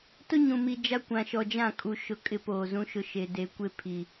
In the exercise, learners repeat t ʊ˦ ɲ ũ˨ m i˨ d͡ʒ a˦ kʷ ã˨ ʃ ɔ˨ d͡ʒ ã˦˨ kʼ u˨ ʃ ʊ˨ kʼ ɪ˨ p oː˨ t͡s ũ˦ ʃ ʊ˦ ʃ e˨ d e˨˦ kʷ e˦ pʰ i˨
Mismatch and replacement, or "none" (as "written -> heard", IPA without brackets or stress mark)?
t͡s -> z